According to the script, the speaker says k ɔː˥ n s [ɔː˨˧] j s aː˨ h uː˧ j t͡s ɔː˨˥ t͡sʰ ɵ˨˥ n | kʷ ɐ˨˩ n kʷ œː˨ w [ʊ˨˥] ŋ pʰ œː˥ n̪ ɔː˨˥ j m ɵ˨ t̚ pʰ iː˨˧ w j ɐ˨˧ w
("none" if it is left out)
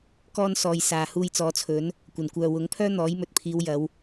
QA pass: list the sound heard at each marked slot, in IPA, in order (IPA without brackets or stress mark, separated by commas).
ɔː˧, ʊ˨˥